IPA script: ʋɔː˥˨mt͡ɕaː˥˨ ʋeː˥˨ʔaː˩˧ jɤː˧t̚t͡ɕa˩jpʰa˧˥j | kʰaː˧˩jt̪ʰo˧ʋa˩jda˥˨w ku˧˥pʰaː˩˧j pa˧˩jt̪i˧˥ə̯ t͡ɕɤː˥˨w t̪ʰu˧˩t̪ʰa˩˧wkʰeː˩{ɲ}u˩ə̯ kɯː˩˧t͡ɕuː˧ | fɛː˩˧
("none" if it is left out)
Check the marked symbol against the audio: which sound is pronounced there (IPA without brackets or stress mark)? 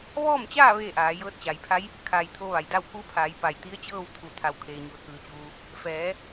ɲ